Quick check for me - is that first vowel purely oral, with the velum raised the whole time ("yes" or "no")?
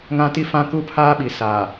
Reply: no